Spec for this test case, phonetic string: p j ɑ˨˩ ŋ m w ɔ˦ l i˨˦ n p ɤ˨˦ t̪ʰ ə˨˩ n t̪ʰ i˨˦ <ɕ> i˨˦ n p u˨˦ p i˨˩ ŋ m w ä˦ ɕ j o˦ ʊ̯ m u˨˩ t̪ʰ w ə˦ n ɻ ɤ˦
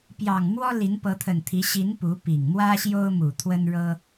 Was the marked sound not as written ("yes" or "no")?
no